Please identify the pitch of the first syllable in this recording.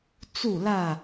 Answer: falling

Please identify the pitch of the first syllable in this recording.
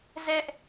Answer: high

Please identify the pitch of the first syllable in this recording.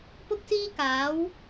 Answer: high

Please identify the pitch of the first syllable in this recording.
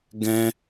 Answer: high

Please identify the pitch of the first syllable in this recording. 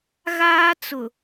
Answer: high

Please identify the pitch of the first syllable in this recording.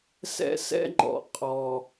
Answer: high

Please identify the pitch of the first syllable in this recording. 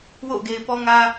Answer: falling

